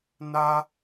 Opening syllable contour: high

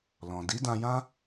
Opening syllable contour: low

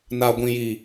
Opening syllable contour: low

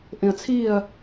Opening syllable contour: low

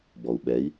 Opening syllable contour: low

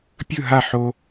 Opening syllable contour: falling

